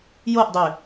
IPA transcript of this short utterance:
j o ʔ dˤ ø

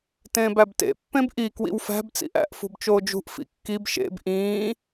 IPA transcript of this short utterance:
t ẽː b æ b t ḛ pː ẽ b ʔ i k w ḭ w f æ̤ b t͡s ḭ ʔ æ̰ ʔ f ṳ b t͡ʃ oː d͡ʒ ṳ ʔ f ḭ kː i b ʃ ḛ b ʔ ĩː

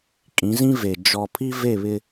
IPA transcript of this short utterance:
kʼ ĩ˨˦ z ĩ˦ v e˨ d͡ʒ ɔ˨ pʰ i˦ v e˦˨ β ɪ˦

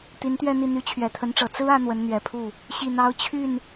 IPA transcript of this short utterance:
t̪ i˧˥ n t̪ ɥ ɛ˥˧ n̪ i˥˩ n̪ y˧˥ t͡ɕʰ ɥ ɛ˨˩ t̪ʰ ə˧˥ n ʈ͡ʂ ɤ˨˩ t͡s ɹ̩˥ ä˧˥ n̪ w ə˧˥ n n̪ ɥ ɛ˨˩ pʰ u˥˩ | ɕ i˥˩ n̪ ɑ˥ ʊ̯ t͡ɕʰ y˥˩ n

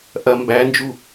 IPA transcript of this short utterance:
ʔ ɐ m b æ n d͡ʒ u

